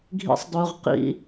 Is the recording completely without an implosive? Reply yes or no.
yes